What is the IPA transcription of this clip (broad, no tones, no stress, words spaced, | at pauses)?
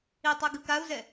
itˤɛɡɯ kau̯zɛ